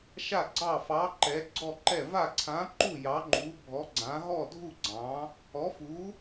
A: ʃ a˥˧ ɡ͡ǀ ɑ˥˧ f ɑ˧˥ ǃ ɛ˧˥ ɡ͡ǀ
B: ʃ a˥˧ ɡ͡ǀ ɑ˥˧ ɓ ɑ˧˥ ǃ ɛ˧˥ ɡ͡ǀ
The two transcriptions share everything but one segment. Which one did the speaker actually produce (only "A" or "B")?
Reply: A